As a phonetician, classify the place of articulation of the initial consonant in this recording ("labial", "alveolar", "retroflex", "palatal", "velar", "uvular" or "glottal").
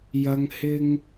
palatal